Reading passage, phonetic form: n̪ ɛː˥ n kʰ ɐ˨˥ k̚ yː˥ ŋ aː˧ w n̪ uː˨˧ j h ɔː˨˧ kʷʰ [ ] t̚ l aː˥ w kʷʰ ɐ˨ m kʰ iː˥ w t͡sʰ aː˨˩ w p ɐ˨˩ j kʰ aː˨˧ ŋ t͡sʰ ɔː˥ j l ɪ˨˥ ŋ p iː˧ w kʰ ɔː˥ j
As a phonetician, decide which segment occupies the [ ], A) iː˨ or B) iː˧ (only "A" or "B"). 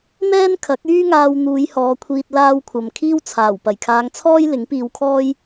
B